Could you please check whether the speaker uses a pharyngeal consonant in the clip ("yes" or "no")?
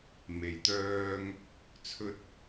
no